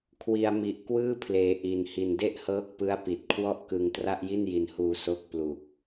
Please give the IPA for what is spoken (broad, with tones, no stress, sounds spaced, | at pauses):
kʰ w i˧ a̯ m i˨˩ ʔ k w ɯː˥˩ pʰ l eː˩˦ ʔ i˩˦ n h i˨˩ n d e˥˩ ʔ h ɤː˦˥ k̚ p ɯ˦˥ a̯ p i˨˩ t̚ kʰ w ɔ˥˩ ʔ k ɯ˧ ŋ t r a˥˩ ʔ j i˥˩ n j i˧ n h uː˧ s o˦˥ k̚ p l u˨˩ k̚